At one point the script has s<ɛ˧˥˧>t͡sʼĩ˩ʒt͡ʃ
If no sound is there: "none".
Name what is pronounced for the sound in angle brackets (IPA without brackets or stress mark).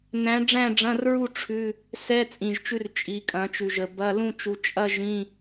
ɛ˧˥˧